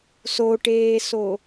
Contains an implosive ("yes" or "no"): no